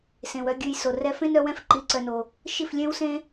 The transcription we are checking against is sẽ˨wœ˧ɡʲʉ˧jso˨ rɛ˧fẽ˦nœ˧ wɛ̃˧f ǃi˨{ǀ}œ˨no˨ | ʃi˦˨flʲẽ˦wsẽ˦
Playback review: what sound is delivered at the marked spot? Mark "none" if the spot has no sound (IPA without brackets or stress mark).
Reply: ǀ